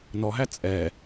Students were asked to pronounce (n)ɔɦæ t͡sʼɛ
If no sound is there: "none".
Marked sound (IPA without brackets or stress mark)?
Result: n